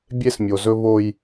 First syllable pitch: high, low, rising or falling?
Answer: high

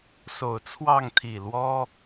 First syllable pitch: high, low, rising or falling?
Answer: low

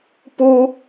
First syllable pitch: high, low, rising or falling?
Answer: high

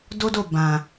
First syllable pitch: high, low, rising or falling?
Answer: high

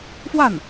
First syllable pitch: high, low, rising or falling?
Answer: falling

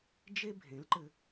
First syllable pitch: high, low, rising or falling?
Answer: high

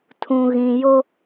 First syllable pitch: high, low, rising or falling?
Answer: low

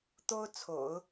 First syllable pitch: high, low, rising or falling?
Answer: high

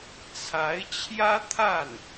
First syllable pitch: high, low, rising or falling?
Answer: rising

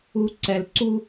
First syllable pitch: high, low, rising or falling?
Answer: low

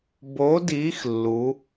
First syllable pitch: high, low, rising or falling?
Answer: rising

